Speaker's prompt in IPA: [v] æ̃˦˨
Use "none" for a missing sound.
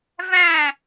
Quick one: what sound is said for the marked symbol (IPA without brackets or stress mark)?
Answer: v